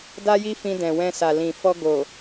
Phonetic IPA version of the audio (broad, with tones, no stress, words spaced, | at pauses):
da˦ji˦fĩ˧ dɛ̃˨wɛ̃˧sa˨ lĩ˨fɔ˧ ɡo˨